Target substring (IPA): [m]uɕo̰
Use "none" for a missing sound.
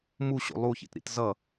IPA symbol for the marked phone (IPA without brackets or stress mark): m